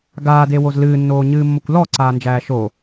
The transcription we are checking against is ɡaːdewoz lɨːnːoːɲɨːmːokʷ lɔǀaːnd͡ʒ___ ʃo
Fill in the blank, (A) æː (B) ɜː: A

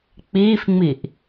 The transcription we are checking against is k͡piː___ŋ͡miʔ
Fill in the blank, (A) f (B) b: A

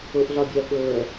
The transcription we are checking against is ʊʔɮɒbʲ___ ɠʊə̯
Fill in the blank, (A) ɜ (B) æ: A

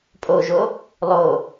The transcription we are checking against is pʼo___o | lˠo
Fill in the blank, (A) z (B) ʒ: B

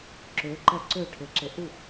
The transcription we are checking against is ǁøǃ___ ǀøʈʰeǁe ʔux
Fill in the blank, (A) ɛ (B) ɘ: A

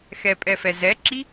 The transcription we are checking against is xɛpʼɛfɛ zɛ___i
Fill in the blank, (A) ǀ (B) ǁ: B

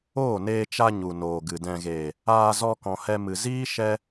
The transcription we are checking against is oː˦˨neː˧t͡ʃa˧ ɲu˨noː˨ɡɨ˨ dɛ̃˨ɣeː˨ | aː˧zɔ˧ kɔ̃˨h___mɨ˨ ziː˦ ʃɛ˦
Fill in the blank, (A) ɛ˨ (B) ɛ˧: B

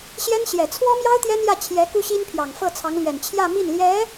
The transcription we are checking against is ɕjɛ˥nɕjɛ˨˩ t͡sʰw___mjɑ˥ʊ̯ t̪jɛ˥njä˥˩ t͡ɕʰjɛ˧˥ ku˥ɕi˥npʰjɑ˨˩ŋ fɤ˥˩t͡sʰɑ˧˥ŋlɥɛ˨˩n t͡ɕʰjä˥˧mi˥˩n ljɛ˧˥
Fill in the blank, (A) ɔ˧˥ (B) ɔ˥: B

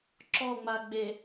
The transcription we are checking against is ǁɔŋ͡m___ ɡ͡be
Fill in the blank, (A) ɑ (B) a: B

